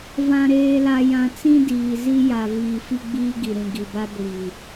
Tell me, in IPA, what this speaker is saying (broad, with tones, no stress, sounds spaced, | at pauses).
v ã˨ ɾ eː˨ l a˨ j ã˨ t͡s ĩ˦ d iː˨ z i˦ j a˨ v iː˨ f i˦ ɡ͡b iː˦ ɡ i˨ ɾ ĩ˨ ɡ i˨ b a˦ ɡʷ iː˨